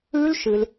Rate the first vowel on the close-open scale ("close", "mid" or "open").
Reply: close